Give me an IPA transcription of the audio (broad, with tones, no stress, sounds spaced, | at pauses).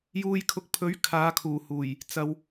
j uː˨ j kʰ ʊ˨ k̚ pʰ ɵ˨˥ ɥ kʰ aː˨˧ kʰ uː˨˩ h uː˨˩ j | t͡s ɐ˨ w